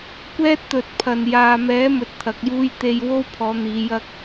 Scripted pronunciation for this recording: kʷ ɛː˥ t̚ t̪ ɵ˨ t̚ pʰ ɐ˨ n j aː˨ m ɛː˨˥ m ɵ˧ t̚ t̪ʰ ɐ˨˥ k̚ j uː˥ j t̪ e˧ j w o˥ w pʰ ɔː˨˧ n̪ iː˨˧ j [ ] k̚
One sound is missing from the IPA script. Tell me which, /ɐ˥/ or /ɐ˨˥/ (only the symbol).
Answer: ɐ˥